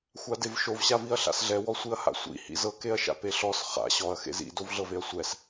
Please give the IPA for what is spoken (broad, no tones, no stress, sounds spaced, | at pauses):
xʷ a d e v ʃ o v ɕ a v i ɐ̯ ɬ a̰ s ɮ ɛ w ɔ sʷ i ɐ̯ h a̰ sʷ ḭ h ḭ z ɤ k e ɐ̯ ʃ a̰ p e ɬ ɔ s χ a̰ ɕ ɔ ɐ̯ x ḛ z ḭ d o v ɮ ɤ v e ɐ̯ sʷ ɛ s